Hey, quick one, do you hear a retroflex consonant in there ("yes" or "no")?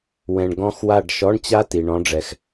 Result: yes